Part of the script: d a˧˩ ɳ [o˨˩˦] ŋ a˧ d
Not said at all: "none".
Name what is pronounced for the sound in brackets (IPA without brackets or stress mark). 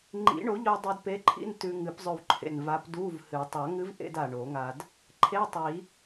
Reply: o˨˩˦